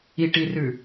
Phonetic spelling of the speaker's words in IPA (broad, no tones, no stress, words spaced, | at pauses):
iʈirʉ